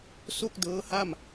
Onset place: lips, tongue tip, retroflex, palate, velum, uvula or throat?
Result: tongue tip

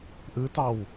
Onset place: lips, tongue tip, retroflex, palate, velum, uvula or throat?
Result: throat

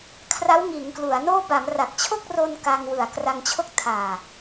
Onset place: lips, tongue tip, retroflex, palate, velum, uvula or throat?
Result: velum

